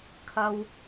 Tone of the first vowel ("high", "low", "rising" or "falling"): high